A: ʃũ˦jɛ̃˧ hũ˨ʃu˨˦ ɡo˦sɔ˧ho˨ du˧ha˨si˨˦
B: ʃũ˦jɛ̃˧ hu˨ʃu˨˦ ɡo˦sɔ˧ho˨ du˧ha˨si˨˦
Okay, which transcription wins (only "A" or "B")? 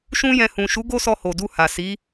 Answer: A